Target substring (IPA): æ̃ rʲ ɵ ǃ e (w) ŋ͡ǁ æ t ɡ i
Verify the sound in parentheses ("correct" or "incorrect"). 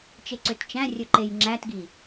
incorrect